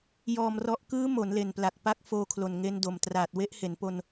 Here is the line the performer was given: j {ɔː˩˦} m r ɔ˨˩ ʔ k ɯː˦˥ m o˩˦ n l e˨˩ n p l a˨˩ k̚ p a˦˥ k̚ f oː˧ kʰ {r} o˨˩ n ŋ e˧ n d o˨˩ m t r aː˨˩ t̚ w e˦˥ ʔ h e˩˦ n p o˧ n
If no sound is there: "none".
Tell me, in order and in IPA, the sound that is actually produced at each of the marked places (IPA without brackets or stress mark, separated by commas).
ɔː˨˩, l